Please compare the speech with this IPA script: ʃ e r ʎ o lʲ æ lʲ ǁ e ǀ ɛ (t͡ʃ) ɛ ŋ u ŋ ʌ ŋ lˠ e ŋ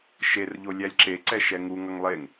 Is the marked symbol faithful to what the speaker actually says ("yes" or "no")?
no